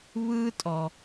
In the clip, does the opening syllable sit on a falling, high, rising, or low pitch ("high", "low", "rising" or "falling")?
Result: high